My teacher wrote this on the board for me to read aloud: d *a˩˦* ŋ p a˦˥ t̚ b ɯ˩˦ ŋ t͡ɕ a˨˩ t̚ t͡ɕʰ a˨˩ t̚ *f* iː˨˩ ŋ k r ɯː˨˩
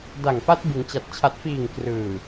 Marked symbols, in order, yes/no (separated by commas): no, yes